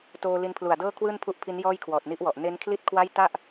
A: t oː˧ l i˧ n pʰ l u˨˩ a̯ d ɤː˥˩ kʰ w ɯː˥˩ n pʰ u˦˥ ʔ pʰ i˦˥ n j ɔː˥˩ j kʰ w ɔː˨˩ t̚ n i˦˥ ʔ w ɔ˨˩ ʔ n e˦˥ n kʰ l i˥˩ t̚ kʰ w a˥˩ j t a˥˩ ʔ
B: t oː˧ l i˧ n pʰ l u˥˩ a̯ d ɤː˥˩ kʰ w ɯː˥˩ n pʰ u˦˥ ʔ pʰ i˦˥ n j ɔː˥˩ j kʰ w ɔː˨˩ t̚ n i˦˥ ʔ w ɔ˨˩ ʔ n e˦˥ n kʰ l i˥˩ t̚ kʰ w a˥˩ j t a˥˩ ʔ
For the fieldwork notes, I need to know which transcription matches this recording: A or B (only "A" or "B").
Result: A